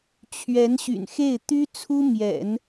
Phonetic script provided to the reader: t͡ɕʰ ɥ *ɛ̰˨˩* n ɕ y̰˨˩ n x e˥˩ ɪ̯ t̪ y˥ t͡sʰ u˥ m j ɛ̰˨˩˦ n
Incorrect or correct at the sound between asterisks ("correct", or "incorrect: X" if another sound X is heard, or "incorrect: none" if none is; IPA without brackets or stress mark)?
incorrect: ɛ˧˥